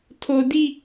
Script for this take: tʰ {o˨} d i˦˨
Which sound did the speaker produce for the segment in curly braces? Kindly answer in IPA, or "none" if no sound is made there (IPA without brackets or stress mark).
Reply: o˨